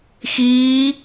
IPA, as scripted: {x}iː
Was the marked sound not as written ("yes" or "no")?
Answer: no